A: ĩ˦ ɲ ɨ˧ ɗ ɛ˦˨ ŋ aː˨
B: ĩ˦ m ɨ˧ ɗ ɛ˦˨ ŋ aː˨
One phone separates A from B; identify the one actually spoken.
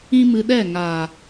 B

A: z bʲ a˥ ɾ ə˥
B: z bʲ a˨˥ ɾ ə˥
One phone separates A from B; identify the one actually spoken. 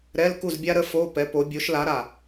A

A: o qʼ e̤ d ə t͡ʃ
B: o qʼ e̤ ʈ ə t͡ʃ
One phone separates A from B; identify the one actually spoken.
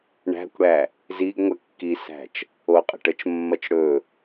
B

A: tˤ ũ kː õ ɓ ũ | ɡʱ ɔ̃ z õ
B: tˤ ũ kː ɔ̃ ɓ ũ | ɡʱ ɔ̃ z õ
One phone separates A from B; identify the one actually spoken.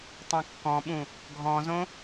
B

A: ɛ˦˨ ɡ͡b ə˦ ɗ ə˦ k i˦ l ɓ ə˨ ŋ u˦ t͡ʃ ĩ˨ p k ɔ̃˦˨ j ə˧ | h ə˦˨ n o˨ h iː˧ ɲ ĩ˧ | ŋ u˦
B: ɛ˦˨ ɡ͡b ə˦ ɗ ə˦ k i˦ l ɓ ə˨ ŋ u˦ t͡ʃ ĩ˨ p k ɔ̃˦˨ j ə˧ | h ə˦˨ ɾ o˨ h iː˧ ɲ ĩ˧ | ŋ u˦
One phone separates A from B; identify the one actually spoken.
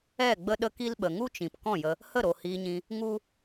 B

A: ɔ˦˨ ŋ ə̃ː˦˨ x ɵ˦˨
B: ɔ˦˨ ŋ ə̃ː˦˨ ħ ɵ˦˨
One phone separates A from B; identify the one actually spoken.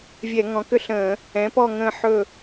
B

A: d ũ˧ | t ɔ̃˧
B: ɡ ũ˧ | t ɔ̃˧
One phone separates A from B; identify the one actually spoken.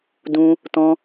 A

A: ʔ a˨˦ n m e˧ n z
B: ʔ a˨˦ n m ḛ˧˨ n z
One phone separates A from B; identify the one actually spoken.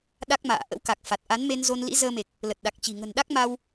A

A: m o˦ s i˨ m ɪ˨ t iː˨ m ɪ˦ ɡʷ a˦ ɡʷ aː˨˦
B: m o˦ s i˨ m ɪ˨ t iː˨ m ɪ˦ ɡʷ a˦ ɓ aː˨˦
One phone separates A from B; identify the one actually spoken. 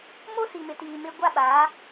B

